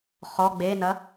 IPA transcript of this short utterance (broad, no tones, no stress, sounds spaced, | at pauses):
χ ɔ ɡ͡b e n ɐ